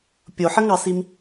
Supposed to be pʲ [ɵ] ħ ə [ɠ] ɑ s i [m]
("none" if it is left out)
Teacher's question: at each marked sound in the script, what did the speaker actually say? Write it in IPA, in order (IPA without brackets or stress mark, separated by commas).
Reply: o, ŋ, m